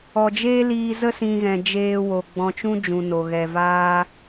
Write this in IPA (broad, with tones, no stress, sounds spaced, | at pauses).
ɔ˨ d͡ʒ eː˦ l iː˧ z ə˦ s ĩ˨ ɣ ɛ̃˨ d͡ʒ eː˧ w o˨ ɡ͡b ɔ̃˧ t͡ʃ ũ˦ d͡ʒ ũ˨ n o˨ ɣ ɛ˨ v aː˦